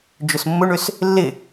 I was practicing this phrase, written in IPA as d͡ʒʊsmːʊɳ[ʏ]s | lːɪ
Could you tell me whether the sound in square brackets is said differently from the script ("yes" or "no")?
no